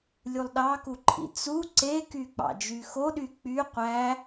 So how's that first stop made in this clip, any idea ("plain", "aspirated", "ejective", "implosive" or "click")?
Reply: implosive